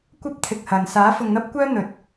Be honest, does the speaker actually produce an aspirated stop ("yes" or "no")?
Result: yes